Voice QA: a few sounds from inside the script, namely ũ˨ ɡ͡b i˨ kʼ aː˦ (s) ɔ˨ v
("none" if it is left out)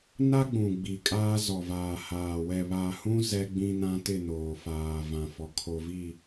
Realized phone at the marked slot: z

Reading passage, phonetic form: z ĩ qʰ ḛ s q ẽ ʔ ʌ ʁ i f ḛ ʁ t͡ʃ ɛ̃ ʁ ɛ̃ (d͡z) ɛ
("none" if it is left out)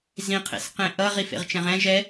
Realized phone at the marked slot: ʒ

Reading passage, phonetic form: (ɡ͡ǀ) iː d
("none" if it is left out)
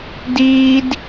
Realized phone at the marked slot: d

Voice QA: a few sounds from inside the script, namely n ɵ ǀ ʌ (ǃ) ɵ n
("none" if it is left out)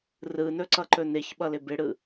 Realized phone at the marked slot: ǃ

